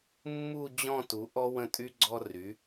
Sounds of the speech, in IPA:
mː u˥˧ d͡ʑ ɔ̃˥˧ t u˩˥ ʔ ɔ˥ w ə̃˥˧ tʼ y˥ ɡ͡ǀ ɔ˥ r y˩˥

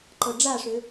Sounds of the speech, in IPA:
ǃ ɤ ɖ͡ʐ a ʂ ø

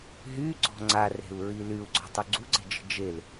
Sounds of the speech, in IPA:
ɦ y ɡ͡ǀ ɔ̤ ŋ͡ǀ a r e̤ u̯ ɹ i l y u̯ ɡ͡ǀ ɔ̤ tˤ u ɡ͡ǀ u ǀ e̤ d͡ʒ ə̤ d͡ʒ e l

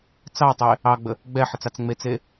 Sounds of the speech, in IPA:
t͡s ɑ tˤ e | ɑ ɡ͡b ə | ɡ͡b ɛ ħ ə t͡s ɑ t͡s ŋ͡m e t͡s e

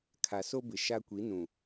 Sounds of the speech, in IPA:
kʰ a˨ s o˦ b ɪ˨ ʃ a˦ kʷ i˨˦ n ũ˨

